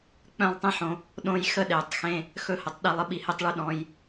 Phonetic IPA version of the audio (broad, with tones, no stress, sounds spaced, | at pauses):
k͡p œ̃˦˨ lˠ tˤ ĩ˦ ħ õ˧ | ɗ õ˧ j x ə˧ ɗ e˨ tˤ x ẽ˧ | x ɵ˦ h ə˧ tˤ ɗ i˧ lˠ ə˧ ɓ i˧ h e˦ tˤ ɭ ʉ˧ ɗ ɔ̃˧ j